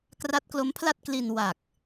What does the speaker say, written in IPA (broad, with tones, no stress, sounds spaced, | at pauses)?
k r a˦˥ t̚ k l o˦˥ m pʰ l a˥˩ t̚ k l i˧ n w a˨˩ k̚